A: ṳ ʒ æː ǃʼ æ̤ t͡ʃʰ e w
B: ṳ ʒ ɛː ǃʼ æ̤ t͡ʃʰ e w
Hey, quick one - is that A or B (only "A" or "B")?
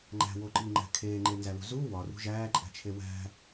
A